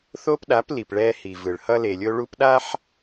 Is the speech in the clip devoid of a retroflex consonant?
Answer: no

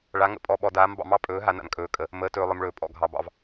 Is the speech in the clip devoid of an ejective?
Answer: no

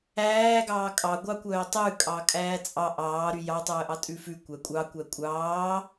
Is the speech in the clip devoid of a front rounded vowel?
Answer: no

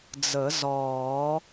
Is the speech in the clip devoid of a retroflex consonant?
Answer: yes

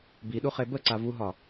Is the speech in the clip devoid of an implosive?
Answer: no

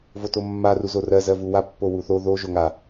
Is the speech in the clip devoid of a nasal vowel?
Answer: yes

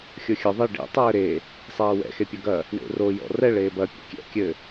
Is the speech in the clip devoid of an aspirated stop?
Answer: yes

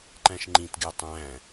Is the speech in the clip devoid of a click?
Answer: no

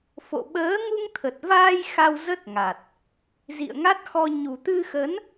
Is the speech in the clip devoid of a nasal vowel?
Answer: yes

